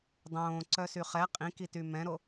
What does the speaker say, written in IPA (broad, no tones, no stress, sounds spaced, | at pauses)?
dˤ õː ǀ œ s y χ ɛ qʼ ĩ k i t y m ɛ̃ ɾ o